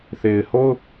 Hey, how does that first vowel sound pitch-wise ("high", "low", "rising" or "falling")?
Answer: low